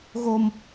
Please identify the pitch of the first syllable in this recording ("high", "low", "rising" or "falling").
high